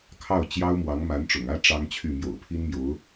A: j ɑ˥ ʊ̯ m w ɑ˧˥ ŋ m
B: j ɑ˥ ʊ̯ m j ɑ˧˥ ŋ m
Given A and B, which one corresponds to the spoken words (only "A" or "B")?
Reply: A